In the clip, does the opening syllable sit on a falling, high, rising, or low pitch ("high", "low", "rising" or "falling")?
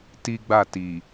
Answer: high